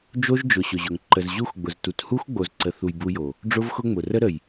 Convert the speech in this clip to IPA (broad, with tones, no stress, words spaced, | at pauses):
d͡ʒo˦ʒd͡ʒʊ˨ ɕʊ˨ʑʊ˨ŋ ǃə˨z ʑu˦xɡ͡bʊ˨ztu˨t hu˦xɡ͡bo˨zǀə˨θu˨j bu˦jo˨ | ɖ͡ʐʊ˦vxʊ˦ŋ͡mʊ˨ rə˦ɾə˨j